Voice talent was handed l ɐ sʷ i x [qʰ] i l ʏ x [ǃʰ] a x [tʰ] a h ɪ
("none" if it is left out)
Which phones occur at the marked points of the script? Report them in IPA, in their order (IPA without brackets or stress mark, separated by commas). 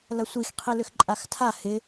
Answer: qʰ, ǃʼ, tʰ